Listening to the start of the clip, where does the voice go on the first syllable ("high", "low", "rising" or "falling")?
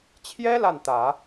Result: high